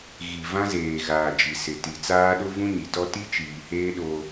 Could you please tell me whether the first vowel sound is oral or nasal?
oral